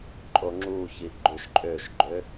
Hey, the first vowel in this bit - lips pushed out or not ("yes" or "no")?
yes